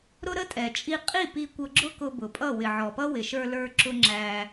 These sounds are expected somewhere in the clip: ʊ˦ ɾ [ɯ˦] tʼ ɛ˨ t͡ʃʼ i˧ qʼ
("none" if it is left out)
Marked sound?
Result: ə˦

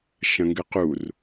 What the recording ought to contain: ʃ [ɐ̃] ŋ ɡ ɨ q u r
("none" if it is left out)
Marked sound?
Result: ɐ̃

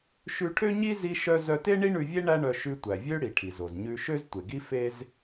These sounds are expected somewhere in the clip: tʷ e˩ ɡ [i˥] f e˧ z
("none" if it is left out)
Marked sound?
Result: i˥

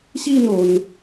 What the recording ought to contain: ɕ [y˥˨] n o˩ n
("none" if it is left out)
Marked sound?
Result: i˥˨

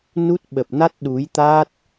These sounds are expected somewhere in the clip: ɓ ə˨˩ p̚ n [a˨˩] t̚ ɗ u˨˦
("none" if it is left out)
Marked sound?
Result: a˦˥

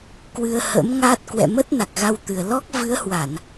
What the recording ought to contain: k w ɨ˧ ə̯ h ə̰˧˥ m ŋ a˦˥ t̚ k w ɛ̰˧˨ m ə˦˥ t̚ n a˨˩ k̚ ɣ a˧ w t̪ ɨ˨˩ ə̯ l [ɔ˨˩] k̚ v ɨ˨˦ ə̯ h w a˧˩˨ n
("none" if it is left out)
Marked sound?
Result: ɔ˦˥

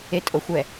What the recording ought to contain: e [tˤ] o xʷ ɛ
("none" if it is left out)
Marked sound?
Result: tʼ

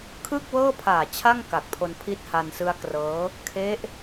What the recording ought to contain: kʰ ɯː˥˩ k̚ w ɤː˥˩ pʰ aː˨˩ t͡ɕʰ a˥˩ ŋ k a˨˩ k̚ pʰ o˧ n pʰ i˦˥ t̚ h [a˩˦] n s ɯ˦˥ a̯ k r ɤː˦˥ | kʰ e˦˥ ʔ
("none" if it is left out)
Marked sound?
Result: a˧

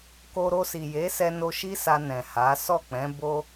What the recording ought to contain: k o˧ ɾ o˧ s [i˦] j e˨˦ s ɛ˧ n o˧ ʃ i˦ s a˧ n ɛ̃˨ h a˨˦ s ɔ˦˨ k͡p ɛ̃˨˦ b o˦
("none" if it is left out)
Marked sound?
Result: i˨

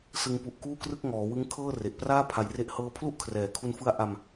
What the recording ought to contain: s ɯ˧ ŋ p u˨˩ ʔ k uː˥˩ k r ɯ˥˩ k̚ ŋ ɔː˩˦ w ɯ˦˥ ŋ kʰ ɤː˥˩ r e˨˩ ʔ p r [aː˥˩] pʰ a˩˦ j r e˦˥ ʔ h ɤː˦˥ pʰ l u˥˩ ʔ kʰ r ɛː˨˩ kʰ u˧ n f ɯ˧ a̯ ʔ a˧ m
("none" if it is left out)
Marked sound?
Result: aː˥˩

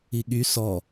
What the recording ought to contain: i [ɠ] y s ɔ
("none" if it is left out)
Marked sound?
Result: ɠ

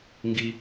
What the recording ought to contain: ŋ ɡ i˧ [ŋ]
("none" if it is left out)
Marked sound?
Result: none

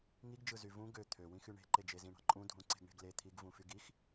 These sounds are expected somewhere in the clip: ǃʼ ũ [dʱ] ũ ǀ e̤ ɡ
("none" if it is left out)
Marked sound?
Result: dʱ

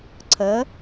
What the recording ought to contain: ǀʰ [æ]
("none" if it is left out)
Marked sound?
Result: ɐ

